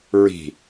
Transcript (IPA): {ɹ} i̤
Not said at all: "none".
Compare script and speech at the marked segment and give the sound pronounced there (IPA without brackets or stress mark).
ɹ